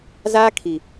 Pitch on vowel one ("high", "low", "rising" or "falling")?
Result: high